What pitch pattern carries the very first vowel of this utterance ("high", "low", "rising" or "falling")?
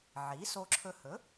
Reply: rising